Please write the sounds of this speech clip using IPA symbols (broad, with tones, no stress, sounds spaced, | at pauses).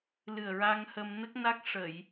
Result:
l ɨ˨˩ ə̯ ɹ a˧ ŋ h ə˧ m n ə˦˥ k̚ n a˦˥ k̚ ʂ ə˨˩˨ j